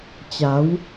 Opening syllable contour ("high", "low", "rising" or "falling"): rising